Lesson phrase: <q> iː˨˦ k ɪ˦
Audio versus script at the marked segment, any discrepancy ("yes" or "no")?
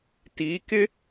yes